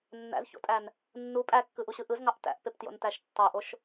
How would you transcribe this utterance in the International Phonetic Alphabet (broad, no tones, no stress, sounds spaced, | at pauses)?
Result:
nː æ̰ z ç o̰ tʼ æ n | nː u pʼ æ kː ɯ ʔ u ɕ ɯ ʔ ɯ z ŋ ɑ ʔ t æ̰ ʔ p e p t j o̰ n t æ ʃ tː ɑ ʔ o ʃ